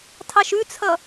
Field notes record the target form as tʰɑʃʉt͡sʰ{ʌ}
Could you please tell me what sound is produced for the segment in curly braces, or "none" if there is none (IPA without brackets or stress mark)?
ʌ